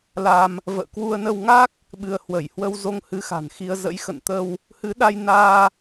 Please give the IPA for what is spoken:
la˧m | və̰ː˧˨ kwu˧ə̯nə˧wŋa˦˥k̚ | ɓɨ˧ə̯ hwə˧˩jhwə˧wzo˧ŋ hɨ˨˦xa̤˨˩nxi˧ə̯ zə̰˧˥jxə̰˧˨nt̪ə˧w | hɨ˨˦ɗa˧j naː˧

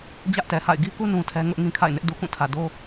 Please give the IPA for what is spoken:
d͡ʑä˦ʔtɛ˨ha̰˦˨ɪ̯ ɡi˦ku˦ nũ˦tʰɛ˦ ŋʊ˦ʔ ŋĩ˦kʰa̰˦˨ɪ̯nɪ˦ʔ du˨kũ˦˨tʰä˨ do˦

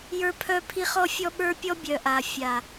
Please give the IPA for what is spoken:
jə˞˦pʰœ˦pʰi˦ χɔ˦fʲɔ˦ɓə˞˦ pʲɔ˦bʲœ˨ ʔa˨fʲa˨

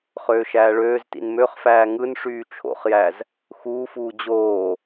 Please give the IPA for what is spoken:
χøːʃæːɭøːztḭn møχfæː ŋɯnʂyː t͡ʃʰo̰χjæz | xuːfuː d͡ʑoː

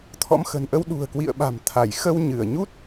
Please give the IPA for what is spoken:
t̪ʰɔ̰˧˥mxə̤˨˩nʔə˧w ɗṳ˨˩ə̯kwḭ˧˨ə̯ɓa̤˨˩m t̪ʰa˧˩j xə˧wɲɨ˧˩ə̯ɲu˦˥t̚

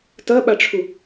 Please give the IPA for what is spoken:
tɐɓaʈ͡ʂʰu

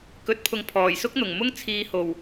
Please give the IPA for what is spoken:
kɵ˨˥t̚pʰʊ˨ŋ pʰɔː˨˩jsʊ˥k̚n̪ʊ˨˩ŋmʊ˥ŋ t͡sʰiː˧ ho˨˩w

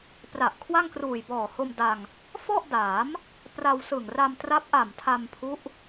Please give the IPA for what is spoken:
pra˨˩ʔkʰwa˥˩ŋkruː˨˩j bɔː˨˩ho˧mda˧ŋ | fɔ˥˩ʔda˩˦m | pra˧wsɯ˨˩ŋra˧mtra˦˥p̚ ʔa˨˩mtʰa˧mpʰu˦˥ʔ

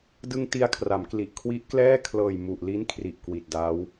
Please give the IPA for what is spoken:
dɯ˧ŋ ti˧a̯kʰra˩˦mkli˨˩ʔ kʰwi˦˥ʔklɛː˥˩ kʰlɤː˨˩jmu˨˩ʔli˦˥n kʰri˨˩ʔkwi˨˩t̚da˦˥w

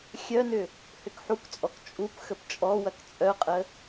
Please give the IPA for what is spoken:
xʲœnʏ | hʏkħukt͡sʼɔk t͡ʃʼup xəpt͡ʃʼɔwɐk t͡sʼœqʼə

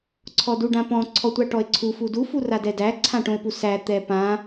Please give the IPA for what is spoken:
ǀʰɔduɖãpɔ̃ ǀʰɔtʷaʈɔe̯ǀʰu fudu furadɛdæ ǀʰãʈõe̯pusæ t̪ɛpã

